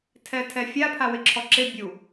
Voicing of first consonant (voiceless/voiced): voiceless